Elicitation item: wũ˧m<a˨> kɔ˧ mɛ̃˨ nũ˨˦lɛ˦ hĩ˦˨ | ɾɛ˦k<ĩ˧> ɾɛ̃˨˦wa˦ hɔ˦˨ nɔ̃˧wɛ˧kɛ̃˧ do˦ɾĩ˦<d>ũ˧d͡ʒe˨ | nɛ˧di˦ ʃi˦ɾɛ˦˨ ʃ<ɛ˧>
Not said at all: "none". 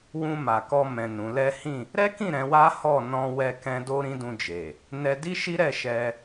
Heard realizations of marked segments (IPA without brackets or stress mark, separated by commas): a˨, ĩ˦˨, d, ɛ˧